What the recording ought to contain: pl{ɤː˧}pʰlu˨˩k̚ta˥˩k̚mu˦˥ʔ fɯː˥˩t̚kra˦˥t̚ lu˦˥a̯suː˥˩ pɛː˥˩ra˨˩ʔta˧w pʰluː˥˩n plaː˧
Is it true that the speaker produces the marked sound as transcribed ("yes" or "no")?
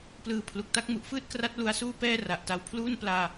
no